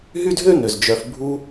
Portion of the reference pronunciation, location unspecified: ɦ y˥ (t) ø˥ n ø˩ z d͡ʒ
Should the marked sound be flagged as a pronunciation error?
yes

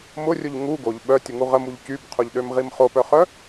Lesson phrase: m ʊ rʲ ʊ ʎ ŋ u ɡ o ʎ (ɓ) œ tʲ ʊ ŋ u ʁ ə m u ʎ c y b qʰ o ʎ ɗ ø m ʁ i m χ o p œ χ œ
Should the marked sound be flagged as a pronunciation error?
no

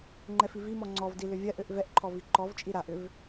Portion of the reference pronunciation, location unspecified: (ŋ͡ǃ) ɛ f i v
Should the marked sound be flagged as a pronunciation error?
no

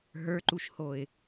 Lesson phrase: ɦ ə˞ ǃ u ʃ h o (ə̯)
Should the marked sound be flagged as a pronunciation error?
yes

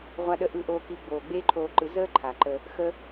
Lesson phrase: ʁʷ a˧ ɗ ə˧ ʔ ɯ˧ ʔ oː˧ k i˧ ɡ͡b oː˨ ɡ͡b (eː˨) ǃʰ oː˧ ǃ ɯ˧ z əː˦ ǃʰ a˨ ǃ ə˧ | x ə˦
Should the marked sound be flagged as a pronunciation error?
yes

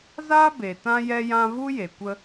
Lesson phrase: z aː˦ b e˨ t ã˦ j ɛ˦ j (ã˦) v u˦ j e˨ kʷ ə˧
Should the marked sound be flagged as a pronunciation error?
no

